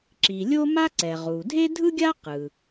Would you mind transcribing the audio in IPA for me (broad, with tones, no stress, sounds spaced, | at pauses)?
ǁ i˩ lʲ o˥ m a˥ ǀ ɛ˩ ʁ u˩ dʱ e˥ dʱ ɯ˥ ɡʲ a˥ q ɯ˩